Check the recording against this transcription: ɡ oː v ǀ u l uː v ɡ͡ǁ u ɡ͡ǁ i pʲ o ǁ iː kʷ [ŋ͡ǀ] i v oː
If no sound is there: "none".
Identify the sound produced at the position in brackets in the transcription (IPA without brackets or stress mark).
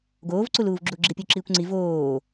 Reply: ŋ͡ǀ